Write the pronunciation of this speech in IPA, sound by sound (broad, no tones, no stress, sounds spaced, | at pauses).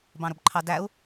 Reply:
b ɑ̃ ɾ ʊ b ǃʰ ɑ d æ u̯